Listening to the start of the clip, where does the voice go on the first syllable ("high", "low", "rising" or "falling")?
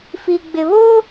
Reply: low